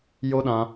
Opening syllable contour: high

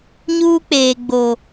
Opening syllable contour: high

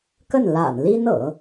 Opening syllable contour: falling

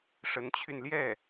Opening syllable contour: rising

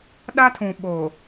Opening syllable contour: high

